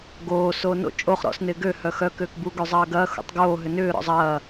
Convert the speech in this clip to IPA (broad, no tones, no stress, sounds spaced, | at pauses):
ɡ oː s oː n o̰ t͡ʃʼ o χ ɾ ɔ̰ s n ɪː ɡ ø h œ x œ k ʏː k b u ɡ ø zˤ ɐː ɡ ɐː x ṵ tˤ ɡ oː ɦ ʏ n ʏː ɾ ɔ̰ zˤ ɐː